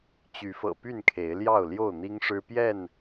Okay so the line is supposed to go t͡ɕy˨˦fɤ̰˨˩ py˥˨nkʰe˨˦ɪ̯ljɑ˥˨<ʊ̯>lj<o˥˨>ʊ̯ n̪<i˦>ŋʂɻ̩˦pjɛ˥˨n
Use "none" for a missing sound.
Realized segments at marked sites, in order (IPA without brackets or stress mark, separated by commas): ʊ̯, o˥˨, i˦